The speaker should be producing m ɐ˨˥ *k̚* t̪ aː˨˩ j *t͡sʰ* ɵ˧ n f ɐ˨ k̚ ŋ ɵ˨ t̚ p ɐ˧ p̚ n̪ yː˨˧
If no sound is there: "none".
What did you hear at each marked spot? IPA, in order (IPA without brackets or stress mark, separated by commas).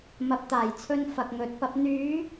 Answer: p̚, t͡sʰ